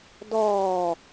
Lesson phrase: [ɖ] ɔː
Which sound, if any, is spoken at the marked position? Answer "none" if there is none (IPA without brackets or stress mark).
d